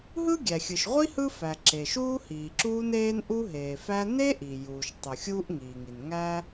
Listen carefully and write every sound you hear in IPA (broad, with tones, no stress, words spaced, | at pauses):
ɦɯ˥ɡʲæ˩xʲɯ˩ʃʁʷi˥ hɯ˥fæ˩ ǁe˩ʃuː˥ hiː˩ǁuː˥neː˥n ʔu˥ɦeː˩fæ˥ ne˥ʔi˩juː˩ʃ tˤu˩xʲuː˥ʔŋiː˩ŋi˩n ŋæ˥